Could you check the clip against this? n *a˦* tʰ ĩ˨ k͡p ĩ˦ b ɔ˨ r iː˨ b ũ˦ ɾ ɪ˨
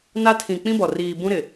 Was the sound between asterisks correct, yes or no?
yes